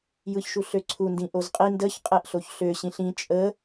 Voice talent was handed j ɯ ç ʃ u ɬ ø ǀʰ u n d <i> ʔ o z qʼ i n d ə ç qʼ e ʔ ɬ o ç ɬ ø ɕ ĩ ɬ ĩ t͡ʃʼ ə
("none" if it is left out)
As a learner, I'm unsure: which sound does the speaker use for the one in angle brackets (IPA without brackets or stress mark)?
ĩ